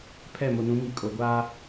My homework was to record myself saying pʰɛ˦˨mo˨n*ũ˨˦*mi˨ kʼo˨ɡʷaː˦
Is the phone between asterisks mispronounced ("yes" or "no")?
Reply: no